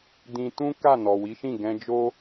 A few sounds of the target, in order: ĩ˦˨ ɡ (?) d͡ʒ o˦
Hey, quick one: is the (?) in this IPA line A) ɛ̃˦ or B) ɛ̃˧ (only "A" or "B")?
B